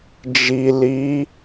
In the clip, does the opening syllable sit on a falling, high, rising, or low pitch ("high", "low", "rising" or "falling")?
low